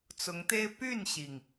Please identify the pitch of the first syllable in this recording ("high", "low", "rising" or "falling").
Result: rising